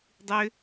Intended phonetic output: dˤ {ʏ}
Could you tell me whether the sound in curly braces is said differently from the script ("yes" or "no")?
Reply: no